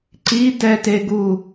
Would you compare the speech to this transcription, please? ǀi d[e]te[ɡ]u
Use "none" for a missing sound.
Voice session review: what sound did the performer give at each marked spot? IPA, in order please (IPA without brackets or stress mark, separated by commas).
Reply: ɛ, ɡ